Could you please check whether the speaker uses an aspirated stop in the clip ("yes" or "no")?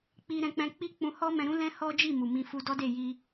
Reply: no